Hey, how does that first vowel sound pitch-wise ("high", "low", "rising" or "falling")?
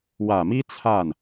low